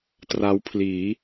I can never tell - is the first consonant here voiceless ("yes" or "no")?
yes